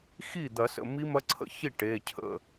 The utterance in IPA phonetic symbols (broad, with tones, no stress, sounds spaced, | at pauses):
x i˥˩ d̪ ɐ˨˩˦ s ə̰˩˧˩ m i˦˥ m ɐ˦˥ ǀʰ ə̰˥˩ ç i˥˩ ʈ e˩˧˩ cʰ ə̰˥˩